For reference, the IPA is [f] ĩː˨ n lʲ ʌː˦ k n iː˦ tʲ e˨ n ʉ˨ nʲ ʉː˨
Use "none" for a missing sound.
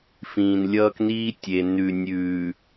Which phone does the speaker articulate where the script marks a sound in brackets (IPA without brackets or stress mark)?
f